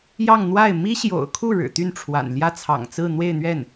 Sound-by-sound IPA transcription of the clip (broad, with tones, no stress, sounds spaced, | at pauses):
j ɑ˥˧ ŋ n̪ w a˥˩ ɪ̯ m i˥ ɕ j o̰˨˩ ʊ̯ kʰ u˥˩ ɻ ɻ̩˨˩ t̪ y˥˩ n ʈ͡ʂʰ w a̰˨˩ n l j ä˥ t͡sʰ ɑ̰˨˩ ŋ t͡s ɹ̩˥˧ n̪ w e˥˧ ɪ̯ n̪ ɥ ɛ˥˩ n